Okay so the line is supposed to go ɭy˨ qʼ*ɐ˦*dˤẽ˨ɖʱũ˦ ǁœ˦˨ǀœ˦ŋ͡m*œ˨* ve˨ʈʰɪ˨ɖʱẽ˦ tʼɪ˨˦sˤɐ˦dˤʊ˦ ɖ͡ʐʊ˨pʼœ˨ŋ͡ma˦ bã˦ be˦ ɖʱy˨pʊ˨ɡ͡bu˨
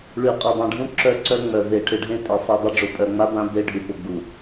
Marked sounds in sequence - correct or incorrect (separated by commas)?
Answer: incorrect, correct